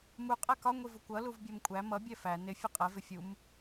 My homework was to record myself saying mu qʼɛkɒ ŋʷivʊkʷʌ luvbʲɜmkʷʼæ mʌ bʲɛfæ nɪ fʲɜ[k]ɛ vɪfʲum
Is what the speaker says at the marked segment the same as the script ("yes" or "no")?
no